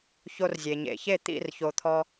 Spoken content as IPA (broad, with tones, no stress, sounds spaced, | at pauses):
ç o˧ r zʲ e˨ ɲ ḛ˨ ç e˦˨ t̪ ḭ˦˨ r ç o˨ t̪ʰ ɔ˧